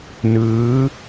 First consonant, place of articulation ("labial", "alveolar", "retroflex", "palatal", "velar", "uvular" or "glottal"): alveolar